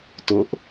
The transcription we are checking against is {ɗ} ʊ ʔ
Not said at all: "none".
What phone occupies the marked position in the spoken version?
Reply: t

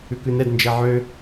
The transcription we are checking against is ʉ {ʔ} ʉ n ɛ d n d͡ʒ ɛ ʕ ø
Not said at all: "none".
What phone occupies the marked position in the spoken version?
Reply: k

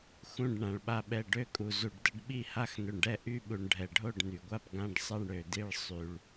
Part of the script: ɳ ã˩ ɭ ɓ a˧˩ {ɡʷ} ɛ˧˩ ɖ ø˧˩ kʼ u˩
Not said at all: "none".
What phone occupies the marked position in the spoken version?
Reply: ɓ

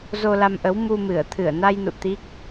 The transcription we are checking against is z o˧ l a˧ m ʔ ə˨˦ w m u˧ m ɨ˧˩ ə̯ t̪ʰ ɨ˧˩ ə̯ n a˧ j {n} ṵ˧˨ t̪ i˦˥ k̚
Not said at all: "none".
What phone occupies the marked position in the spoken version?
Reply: n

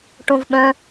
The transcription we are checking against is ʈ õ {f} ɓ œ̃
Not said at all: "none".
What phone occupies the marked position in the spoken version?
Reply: v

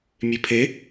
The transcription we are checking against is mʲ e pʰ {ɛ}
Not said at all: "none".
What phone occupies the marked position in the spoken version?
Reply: e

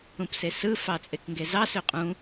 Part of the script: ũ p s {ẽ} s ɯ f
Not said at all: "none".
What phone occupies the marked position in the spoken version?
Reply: e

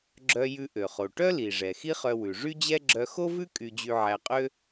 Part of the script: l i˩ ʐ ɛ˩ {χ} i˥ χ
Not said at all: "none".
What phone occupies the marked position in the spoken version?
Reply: x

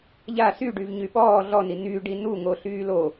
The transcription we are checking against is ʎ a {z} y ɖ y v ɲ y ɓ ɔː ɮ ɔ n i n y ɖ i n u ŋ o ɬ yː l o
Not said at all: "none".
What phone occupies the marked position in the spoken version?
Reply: s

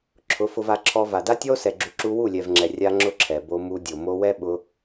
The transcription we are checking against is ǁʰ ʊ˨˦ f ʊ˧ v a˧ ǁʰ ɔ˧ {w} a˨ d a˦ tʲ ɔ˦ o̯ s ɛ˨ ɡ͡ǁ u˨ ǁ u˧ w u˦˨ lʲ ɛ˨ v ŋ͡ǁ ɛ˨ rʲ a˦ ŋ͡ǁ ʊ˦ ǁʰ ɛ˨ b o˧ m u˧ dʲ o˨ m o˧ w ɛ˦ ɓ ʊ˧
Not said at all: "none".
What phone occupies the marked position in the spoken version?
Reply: v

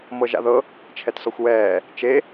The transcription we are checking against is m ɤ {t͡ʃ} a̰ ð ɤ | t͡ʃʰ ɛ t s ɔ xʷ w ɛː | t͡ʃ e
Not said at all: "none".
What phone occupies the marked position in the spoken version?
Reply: ʒ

